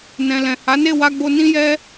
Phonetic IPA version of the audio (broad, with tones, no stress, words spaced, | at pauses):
nɛ̃˨lɛ̃˨ ha˨˦ne˦˨wa˧ɡ͡bo˧ nĩ˦jɛ˦